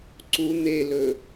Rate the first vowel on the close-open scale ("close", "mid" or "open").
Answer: close